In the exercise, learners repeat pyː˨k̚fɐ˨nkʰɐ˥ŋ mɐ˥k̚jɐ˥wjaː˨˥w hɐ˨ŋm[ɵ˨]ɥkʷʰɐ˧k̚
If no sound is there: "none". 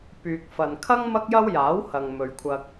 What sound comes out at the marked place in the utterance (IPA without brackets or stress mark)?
ɵ˨